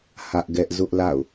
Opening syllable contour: high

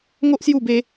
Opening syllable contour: high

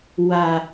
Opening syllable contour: low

